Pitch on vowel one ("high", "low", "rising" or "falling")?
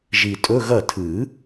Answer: low